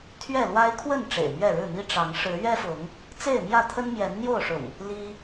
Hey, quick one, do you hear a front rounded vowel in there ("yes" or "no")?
no